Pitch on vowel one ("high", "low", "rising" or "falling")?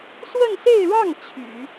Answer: falling